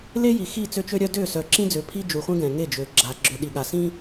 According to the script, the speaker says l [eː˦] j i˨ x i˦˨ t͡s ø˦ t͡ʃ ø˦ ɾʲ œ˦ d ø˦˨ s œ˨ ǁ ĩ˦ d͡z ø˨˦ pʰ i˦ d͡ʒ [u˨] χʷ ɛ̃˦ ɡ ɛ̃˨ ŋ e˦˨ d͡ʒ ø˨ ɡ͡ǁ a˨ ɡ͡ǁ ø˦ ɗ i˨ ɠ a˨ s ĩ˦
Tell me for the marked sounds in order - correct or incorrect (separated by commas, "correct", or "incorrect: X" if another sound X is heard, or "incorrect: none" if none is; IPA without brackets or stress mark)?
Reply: incorrect: e˦, correct